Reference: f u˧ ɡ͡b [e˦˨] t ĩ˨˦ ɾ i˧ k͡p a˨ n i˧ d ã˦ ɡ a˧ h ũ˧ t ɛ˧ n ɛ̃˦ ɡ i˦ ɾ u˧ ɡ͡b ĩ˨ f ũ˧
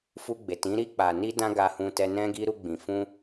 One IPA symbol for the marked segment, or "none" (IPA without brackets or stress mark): e˨